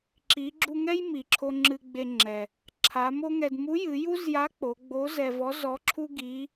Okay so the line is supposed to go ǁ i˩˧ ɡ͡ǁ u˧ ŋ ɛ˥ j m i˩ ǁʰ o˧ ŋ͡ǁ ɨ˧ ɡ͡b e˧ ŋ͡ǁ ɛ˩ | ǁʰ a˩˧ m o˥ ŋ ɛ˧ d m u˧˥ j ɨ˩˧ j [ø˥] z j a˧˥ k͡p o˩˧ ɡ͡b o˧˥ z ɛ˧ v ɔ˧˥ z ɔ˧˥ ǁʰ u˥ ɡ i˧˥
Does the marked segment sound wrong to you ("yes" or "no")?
yes